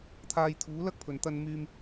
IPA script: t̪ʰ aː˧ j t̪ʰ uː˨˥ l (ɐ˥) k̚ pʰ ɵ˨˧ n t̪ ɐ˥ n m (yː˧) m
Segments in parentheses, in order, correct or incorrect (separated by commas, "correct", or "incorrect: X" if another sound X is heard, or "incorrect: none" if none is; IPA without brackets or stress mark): correct, correct